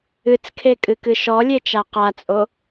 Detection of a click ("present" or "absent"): absent